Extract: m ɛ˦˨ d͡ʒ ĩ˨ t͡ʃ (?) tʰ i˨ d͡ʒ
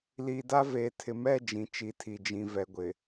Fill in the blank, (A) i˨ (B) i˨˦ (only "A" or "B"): B